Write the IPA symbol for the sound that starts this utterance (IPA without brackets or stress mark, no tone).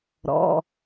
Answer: ɾ